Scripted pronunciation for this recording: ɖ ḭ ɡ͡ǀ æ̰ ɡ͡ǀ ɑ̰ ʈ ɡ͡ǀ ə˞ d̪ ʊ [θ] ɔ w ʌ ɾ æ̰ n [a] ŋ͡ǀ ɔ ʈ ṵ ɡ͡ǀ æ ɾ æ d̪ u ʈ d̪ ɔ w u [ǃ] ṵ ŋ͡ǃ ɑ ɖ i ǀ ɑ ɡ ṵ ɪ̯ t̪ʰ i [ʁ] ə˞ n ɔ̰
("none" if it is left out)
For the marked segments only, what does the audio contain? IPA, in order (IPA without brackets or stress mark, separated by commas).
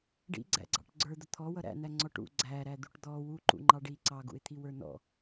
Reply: t̪ʰ, æ, ǃ, w